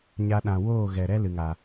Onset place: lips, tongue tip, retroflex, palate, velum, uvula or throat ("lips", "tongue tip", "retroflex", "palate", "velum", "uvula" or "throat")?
palate